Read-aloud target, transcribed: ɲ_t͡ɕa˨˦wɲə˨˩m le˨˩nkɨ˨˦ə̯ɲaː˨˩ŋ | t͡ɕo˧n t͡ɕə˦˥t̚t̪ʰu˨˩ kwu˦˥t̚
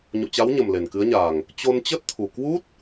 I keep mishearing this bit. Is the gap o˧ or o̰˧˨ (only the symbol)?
o̰˧˨